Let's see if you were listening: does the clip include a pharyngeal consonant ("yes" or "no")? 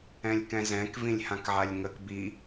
yes